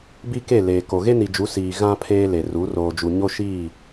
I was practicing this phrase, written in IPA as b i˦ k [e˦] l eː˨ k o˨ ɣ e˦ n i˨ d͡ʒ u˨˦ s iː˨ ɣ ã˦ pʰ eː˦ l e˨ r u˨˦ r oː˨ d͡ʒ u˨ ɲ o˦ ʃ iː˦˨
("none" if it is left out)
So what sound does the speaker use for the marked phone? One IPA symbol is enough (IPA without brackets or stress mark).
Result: e˦˨